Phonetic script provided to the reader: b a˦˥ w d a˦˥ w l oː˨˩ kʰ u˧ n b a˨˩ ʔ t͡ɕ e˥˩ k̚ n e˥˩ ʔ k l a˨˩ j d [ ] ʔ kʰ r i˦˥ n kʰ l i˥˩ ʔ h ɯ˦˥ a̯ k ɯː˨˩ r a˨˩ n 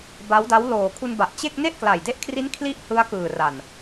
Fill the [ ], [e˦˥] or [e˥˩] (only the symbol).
e˦˥